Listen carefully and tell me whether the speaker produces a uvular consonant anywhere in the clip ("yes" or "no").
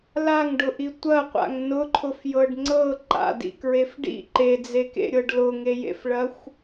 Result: yes